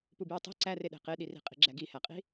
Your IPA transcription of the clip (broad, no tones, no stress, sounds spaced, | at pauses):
p u b j u tˤ i̤ ǀ æ r e ɗ e̤ q e ɗ i r i̤ qʼ i̤ ɡ͡ǁ æ ɡ i h æ qʼ i̤